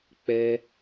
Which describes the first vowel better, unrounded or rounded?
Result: unrounded